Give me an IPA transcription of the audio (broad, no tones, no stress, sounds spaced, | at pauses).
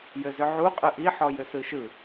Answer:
j ɘ z ʏ ʕ u qʼ ɯ ʔ i ħ ɔ j ʏ s ɯ ʃ ɯ